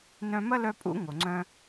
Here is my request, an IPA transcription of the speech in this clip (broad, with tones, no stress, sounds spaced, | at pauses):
n œ̃˧ m ɐ˦ l œ˧ pʼ ṵ˦ ŋ o˨ ŋ͡ǀ œ̃˧